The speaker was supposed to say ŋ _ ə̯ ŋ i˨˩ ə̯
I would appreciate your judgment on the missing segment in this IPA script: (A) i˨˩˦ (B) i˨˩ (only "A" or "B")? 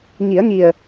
A